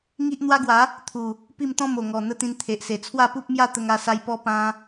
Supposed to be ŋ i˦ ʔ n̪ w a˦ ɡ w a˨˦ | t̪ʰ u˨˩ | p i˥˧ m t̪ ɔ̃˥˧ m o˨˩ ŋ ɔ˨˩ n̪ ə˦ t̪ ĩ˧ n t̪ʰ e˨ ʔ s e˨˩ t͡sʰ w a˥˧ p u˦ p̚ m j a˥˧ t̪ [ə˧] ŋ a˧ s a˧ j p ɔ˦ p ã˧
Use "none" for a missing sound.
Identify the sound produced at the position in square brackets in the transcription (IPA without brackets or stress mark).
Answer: ə˧